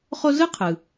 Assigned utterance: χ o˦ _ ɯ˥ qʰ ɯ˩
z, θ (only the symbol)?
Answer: z